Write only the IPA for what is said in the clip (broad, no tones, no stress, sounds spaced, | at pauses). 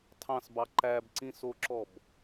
tʰ ɑ̃ s b ɑ ǃ æ b ǀ ĩ s o ǁ ɔ b